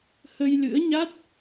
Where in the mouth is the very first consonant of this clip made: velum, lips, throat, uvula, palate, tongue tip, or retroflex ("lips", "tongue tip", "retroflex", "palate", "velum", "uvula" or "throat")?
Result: throat